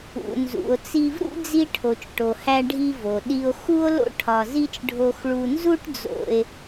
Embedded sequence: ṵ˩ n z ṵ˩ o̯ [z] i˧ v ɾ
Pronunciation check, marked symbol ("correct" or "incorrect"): incorrect